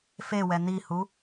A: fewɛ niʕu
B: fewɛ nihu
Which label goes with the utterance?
B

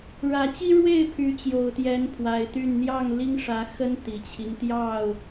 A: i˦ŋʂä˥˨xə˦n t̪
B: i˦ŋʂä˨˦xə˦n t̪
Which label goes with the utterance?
B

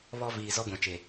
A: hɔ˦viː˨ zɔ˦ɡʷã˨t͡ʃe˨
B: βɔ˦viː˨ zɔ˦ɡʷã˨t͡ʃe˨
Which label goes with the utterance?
B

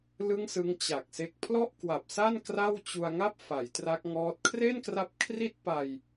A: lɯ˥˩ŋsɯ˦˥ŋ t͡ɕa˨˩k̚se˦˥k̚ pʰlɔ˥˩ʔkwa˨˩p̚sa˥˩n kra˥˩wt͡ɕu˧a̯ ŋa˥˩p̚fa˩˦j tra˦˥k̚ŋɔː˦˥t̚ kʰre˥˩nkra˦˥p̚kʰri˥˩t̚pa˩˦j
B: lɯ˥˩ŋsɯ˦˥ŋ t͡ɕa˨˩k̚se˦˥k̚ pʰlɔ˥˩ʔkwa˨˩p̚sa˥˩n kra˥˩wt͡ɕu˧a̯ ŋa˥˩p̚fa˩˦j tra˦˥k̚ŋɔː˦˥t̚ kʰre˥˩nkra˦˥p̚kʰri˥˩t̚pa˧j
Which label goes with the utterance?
B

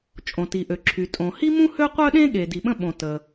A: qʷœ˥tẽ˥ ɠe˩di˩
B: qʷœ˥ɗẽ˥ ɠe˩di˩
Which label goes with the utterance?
B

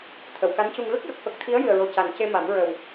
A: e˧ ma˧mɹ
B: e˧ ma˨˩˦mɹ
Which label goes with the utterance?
B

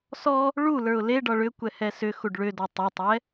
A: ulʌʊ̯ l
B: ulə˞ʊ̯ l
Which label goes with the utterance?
B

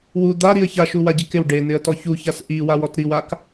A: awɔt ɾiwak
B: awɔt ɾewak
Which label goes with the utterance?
A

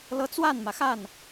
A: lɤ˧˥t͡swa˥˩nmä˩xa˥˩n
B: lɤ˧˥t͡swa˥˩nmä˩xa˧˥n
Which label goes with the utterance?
A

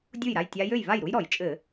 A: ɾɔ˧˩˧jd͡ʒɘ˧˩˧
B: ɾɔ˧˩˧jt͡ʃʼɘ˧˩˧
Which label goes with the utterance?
B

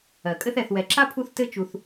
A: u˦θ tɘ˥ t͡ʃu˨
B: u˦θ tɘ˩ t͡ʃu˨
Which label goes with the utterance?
A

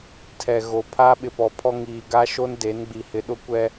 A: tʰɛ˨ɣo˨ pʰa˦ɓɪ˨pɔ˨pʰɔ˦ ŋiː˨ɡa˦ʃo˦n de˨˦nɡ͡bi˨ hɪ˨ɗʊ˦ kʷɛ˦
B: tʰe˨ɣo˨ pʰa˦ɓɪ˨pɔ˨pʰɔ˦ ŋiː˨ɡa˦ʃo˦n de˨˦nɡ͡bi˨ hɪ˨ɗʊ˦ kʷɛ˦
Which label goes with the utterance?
A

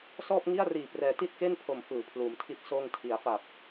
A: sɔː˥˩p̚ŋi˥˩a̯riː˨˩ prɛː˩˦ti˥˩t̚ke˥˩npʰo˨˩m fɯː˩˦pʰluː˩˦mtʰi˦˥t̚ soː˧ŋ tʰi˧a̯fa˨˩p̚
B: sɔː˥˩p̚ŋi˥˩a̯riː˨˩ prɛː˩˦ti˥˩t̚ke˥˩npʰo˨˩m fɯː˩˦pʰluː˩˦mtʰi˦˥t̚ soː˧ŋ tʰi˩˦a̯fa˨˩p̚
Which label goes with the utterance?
B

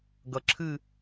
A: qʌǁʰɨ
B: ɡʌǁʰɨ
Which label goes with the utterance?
B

